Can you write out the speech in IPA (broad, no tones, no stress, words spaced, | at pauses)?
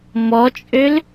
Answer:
mɔt͡ʃʼøl